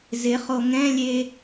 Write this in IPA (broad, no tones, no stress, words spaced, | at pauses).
zɪχo ŋɛ̃lʲe